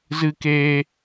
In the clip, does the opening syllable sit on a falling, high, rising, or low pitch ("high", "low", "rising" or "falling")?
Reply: high